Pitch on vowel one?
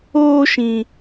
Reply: high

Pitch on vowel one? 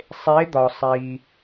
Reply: rising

